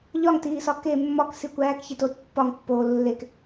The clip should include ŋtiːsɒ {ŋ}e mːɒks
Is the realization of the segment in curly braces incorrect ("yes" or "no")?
yes